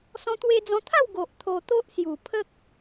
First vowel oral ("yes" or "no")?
no